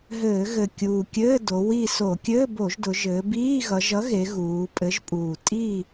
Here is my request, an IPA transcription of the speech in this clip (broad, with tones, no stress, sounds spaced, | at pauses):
ɦ ɘː˧˩˧ ɣ ɘ˨˩ kʲ uː˨˩ kʲ ɘː˧˥˧ d o˩˧ w i˦˨ s o˧˩˧ kʲ ɘː˧˥˧ b o˧˩˧ ʒ d ʊ˩˧ ʒ ɘː˩˧ b iː˧˥˧ ɣ ʌ˩˧ ʒ ʌ˨˥ ɣ e˩˧ ɣ uː˩˧ pʼ ɘ˨˥ ʒ pʼ uː˨˩ tʼ i˦˨